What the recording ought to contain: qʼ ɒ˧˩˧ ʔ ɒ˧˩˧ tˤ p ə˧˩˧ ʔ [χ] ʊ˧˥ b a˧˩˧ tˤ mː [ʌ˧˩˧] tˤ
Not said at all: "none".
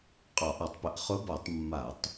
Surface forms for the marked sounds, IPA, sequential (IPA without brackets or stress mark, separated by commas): χ, a˧˩˧